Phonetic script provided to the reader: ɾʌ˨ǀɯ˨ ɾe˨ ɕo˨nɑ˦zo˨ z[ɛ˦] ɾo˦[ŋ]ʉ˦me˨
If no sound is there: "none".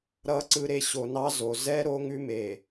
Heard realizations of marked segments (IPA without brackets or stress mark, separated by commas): ɛ˦, ŋ